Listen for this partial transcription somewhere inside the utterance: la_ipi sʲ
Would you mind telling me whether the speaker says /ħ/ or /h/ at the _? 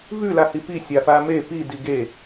h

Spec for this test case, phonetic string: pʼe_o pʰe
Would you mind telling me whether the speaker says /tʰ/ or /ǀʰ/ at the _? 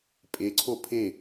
ǀʰ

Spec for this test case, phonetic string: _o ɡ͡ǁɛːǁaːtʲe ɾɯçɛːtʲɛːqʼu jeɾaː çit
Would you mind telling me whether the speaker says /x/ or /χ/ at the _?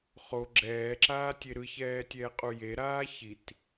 χ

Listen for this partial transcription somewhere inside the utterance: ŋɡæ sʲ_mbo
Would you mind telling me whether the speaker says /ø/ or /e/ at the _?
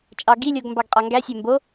ø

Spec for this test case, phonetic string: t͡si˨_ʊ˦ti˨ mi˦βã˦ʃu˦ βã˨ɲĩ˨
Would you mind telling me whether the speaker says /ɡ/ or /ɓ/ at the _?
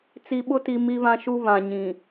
ɓ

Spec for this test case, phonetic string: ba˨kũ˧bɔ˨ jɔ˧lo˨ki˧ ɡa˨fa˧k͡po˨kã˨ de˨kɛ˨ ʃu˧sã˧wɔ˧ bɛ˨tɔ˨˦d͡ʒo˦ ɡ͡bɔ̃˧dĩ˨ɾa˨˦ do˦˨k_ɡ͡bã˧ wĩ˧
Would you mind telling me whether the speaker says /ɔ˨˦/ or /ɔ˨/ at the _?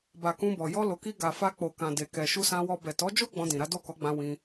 ɔ˨˦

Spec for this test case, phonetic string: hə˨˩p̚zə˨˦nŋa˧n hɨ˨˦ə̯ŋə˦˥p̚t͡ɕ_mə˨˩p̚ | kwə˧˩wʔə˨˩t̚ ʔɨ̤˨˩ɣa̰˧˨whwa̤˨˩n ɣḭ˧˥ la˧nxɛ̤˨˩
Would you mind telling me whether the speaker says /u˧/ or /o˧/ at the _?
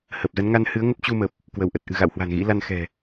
u˧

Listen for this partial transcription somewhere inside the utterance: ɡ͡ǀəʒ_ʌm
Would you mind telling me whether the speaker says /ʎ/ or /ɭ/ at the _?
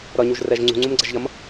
ʎ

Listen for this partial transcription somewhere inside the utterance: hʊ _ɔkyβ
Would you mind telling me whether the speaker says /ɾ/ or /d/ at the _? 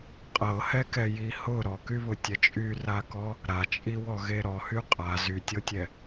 ɾ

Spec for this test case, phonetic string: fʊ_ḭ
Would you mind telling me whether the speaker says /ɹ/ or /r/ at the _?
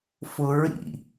ɹ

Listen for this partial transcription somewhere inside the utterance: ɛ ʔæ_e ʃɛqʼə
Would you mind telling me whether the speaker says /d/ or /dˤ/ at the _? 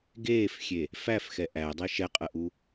dˤ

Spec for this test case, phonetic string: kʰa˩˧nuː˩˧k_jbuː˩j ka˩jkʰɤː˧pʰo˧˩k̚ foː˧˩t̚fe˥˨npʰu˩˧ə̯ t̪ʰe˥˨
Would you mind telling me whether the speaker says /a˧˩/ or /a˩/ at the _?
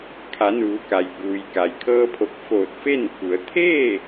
a˩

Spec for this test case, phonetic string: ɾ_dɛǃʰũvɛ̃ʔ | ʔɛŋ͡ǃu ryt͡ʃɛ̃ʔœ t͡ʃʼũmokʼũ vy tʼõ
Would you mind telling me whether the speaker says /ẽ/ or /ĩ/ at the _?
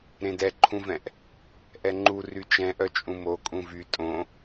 ẽ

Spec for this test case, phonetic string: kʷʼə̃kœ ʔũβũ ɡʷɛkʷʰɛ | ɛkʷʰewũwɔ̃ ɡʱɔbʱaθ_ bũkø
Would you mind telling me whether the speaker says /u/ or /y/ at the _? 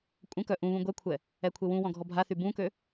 y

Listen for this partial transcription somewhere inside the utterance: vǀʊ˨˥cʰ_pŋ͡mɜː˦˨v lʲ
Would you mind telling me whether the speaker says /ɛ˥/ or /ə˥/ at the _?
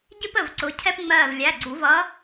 ɛ˥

